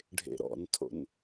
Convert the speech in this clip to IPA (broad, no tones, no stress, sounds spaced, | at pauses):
ɖʱ ḛ ɾ ɔ̰ n tʰ o̰ n